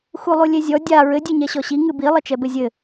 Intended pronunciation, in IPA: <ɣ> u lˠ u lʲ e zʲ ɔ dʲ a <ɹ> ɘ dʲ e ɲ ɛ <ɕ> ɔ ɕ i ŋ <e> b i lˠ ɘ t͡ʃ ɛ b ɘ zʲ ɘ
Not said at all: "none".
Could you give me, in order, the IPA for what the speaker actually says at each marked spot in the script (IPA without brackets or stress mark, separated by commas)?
x, ɹ, ɕ, ɨ